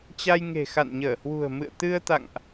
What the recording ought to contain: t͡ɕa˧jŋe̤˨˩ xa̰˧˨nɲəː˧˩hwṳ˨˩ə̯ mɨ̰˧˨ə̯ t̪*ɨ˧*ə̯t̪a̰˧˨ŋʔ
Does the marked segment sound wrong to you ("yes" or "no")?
no